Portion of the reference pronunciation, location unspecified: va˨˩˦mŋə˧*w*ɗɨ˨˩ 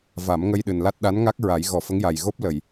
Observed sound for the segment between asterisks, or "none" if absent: j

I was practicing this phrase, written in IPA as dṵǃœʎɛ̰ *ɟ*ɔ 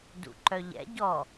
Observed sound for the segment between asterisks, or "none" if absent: ɟ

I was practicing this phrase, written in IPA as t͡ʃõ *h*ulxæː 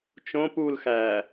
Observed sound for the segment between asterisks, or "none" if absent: p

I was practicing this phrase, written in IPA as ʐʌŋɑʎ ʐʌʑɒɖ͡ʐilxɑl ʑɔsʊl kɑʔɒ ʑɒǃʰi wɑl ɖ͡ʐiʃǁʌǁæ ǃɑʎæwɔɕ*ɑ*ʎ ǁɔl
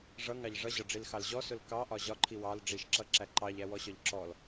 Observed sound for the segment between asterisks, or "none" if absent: ɒ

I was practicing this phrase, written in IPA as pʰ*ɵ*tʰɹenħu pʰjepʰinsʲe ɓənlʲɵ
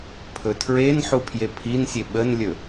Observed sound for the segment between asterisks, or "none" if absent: ɵ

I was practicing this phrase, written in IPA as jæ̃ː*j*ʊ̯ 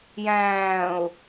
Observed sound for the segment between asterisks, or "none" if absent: none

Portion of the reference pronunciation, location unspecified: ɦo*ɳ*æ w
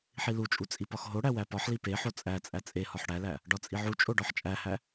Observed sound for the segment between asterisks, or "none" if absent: ɽ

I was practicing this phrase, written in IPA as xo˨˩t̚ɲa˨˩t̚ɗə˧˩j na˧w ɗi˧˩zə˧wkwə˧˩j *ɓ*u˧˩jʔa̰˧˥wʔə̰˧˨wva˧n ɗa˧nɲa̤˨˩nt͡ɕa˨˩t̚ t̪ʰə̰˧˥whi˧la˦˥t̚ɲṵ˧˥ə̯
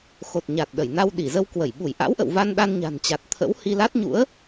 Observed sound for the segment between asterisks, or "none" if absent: ɓ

